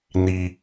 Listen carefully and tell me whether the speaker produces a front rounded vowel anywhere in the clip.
no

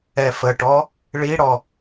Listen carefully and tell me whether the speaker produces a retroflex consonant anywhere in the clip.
yes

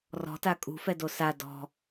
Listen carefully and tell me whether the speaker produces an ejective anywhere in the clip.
yes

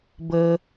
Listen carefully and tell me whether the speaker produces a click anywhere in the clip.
no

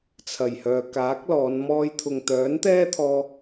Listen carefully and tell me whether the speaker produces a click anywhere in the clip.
no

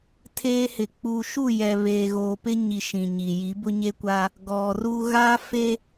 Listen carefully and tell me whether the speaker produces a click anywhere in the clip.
no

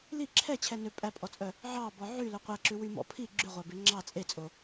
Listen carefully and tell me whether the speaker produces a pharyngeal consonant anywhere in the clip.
yes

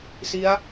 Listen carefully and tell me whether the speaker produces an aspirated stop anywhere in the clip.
no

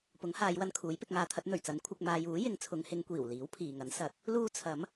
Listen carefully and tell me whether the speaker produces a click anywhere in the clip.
no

